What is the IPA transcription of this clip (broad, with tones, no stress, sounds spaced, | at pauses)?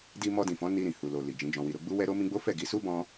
d i˧ m ɔ˧ d ĩ˨ f ɔ̃˨˦ n i˧ ɾ ĩ˨ h u˨ l o˨ l i˨ d͡ʒ ĩ˨˦ d͡ʒ ɔ̃˧ w i˧ ɾ o˧ ɡ͡b u˦ w ɛ˦ ɾ o˦ m ĩ˦ ɡ͡b o˦ f ɛ˦˨ ɡ i˨˦ s u˦ b ɔ̃˧